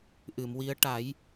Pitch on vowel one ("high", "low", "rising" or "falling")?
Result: low